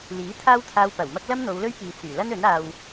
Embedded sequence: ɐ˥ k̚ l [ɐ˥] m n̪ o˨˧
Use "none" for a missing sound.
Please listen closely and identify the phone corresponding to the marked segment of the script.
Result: ɐ˥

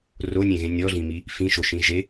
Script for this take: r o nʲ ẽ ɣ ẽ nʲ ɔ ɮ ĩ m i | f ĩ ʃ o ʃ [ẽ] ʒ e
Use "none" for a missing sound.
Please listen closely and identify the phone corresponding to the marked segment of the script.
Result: ĩ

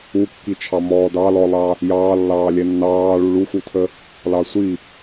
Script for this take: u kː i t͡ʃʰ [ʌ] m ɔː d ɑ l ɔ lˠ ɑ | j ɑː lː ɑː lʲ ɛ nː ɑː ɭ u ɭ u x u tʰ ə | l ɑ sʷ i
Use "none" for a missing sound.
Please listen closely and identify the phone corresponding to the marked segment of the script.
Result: ɑ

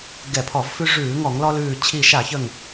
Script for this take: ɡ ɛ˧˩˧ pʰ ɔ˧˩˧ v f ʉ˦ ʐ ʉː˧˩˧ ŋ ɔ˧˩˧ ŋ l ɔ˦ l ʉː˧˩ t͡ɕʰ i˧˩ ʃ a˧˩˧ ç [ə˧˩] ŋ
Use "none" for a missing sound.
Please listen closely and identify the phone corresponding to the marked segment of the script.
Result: ə˧˩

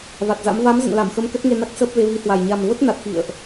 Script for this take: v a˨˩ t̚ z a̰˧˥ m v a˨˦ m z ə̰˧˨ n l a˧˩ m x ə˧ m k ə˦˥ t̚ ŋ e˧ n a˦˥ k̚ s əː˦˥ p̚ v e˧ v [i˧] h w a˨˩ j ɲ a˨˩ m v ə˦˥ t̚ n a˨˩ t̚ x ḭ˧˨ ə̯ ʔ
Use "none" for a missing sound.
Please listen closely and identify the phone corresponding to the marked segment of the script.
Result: i˨˦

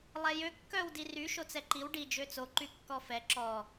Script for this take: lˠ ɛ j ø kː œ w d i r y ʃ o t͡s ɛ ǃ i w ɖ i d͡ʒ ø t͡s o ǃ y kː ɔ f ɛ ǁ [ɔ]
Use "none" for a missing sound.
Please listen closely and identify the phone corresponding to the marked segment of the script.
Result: ɔ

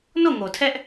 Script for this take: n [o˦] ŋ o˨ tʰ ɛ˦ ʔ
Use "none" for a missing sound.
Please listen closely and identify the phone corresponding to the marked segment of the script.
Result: o˦˨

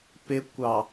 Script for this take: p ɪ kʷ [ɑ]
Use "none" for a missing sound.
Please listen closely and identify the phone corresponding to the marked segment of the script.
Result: ɑ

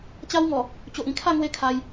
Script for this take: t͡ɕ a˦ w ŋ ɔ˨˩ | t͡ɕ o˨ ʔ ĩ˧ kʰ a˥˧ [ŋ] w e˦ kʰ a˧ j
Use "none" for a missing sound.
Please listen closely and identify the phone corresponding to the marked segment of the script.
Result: ŋ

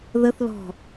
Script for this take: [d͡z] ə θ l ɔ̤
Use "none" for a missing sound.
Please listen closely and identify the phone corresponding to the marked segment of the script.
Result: ð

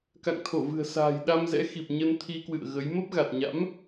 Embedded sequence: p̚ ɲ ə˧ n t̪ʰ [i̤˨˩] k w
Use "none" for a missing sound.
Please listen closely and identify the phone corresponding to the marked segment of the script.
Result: i˧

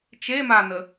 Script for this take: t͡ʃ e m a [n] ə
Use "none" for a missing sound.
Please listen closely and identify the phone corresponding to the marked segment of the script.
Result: n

